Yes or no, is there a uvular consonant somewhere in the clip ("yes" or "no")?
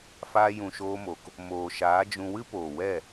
no